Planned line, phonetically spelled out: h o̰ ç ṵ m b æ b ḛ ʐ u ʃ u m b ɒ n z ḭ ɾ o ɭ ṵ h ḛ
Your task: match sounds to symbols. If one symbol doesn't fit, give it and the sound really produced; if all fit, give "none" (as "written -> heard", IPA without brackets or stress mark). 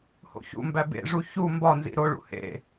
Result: ʃ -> ç